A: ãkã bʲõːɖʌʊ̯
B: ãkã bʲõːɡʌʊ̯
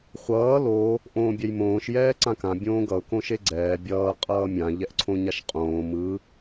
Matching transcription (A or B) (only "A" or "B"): B